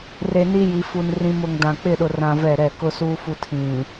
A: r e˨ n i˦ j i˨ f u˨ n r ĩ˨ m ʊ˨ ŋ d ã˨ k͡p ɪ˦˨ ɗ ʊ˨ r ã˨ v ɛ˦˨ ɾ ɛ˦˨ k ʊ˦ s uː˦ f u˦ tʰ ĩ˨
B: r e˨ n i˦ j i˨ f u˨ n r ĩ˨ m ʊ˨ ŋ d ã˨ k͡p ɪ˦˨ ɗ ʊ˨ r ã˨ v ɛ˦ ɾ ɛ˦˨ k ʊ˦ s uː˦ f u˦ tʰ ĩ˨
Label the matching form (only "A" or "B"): A